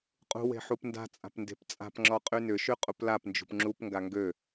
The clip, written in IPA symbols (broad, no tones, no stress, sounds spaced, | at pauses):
qʼ ṳ w e̤ ħ u p n d a̤ t͡sʼ a̤ p n d e̤ p t͡sʼ a̤ p ŋ͡ǁ ɔ qʼ y n ʏ ʃ y qʼ u p l a p n d͡ʒ ṳ p ŋ͡ǁ u p ŋ ɡ a ŋ ɡ ø